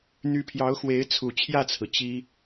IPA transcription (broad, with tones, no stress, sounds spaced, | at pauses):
n̪ y˧˥ pʰ j ɑ˧˥ ʊ̯ x w e˧˥ ɪ̯ t͡sʰ u˨˩ t͡ɕʰ j ä˥˩ t͡sʰ ɹ̩˩ t͡ɕ i˥